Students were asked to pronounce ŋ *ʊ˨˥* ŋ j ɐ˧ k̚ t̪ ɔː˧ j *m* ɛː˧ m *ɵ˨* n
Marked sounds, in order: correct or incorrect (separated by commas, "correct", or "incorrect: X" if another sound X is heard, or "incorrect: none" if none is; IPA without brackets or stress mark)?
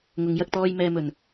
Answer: incorrect: ʊ˨˧, correct, correct